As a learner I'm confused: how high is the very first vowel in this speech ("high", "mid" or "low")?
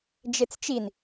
mid